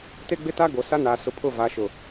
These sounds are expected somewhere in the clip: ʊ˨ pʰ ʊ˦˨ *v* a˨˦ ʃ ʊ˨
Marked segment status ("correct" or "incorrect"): correct